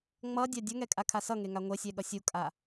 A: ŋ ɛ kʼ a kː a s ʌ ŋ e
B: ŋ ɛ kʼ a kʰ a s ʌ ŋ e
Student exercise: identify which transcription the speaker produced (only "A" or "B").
B